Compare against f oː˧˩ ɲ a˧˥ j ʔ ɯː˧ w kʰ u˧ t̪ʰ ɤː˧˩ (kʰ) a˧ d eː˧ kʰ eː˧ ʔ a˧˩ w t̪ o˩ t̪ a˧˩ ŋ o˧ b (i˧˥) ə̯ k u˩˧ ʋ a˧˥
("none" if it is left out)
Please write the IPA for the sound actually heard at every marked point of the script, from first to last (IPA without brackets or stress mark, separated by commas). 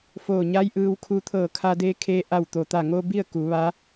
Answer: kʰ, i˥˨